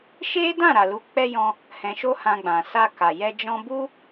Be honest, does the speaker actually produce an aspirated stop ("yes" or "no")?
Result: no